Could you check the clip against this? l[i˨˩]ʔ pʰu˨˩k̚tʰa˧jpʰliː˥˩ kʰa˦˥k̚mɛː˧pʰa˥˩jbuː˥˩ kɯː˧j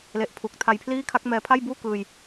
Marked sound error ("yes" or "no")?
yes